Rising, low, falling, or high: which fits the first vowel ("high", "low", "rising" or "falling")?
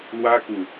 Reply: high